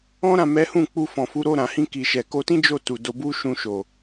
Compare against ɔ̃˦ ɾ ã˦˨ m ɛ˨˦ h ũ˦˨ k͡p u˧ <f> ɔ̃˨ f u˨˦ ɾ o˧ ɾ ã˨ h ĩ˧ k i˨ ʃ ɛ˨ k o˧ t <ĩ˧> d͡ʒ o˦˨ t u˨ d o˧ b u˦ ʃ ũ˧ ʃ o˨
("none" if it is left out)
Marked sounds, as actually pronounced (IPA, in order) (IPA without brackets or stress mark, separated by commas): f, ĩ˦